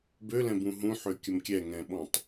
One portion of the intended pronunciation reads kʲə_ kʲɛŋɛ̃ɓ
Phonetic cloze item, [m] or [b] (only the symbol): m